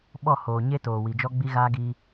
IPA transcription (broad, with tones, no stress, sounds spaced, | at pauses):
ɓ ɔ˦˨ h oː˨ ɲ e˦ t oː˨ w i˨ d͡ʒ ɔ˦ ɡ͡b i˦ ɣ aː˦ ɡ i˦